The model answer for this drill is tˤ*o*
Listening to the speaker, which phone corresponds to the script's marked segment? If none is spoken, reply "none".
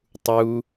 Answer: u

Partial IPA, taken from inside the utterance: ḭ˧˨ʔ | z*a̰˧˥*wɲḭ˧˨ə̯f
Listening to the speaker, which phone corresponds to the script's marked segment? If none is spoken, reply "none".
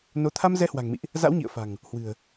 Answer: a̰˧˥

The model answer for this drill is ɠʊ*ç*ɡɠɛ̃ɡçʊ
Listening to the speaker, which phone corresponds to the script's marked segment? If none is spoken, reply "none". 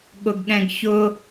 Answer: none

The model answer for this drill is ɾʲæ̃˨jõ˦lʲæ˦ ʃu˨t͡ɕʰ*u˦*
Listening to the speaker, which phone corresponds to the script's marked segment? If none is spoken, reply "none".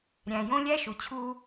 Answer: u˦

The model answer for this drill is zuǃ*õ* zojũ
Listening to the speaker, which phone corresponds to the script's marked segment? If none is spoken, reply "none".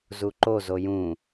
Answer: o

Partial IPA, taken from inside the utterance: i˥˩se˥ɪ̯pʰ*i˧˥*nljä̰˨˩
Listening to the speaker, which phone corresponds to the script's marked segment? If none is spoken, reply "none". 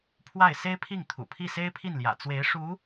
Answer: i˥˩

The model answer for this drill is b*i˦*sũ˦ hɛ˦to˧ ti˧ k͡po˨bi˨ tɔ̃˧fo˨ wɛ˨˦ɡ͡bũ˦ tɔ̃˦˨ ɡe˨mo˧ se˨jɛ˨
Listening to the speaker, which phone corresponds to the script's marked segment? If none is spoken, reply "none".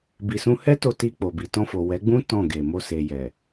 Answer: i˧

